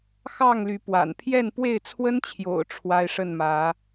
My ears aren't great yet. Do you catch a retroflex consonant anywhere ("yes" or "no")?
yes